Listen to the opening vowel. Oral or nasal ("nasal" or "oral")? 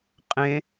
nasal